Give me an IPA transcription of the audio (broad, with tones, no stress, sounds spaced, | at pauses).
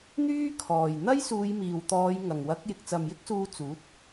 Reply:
n̪ yː˥ kʰ ɔː˨˩ j n̪ ɐ˥ j s uː˨˧ j m iː˨˩ w t̪ ɔː˨˧ j ŋ ɐ˨˩ ŋ w ɐ˨˥ k̚ j ɪ˨ k̚ t͡s ɐ˨ m j ɪ˥ k̚ s uː˧ t͡s uː˨˥ t̚